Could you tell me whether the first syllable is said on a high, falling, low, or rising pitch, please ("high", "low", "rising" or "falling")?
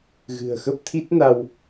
low